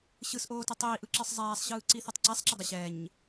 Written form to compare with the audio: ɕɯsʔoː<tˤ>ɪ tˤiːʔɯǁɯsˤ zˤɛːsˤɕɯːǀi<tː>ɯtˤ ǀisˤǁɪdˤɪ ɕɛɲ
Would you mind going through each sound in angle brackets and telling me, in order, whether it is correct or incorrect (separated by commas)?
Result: incorrect, incorrect